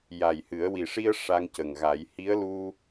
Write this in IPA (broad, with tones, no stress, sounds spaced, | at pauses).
j a˨˩ j h ɨ˨˩˦ ə̯ w i˨˩ ʂ i˧ ə̯ ʂ a˧ ŋ c ə˨˩ ŋ ɣ a˨˩˦ j h i˧˥ ə̯ l u˧